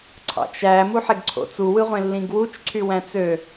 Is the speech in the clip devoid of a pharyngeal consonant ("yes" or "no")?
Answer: no